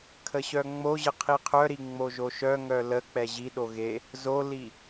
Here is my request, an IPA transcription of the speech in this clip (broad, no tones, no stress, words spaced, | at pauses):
kʰəɕœŋ͡moʑə qʰiqʰœɾi ŋ͡moʒoʃœŋœ lək͡pɛ ʑiɗo ɣe | zoli